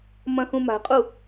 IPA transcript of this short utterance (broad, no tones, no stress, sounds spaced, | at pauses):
m ɐ̃ x ũ m a̤ qʼ u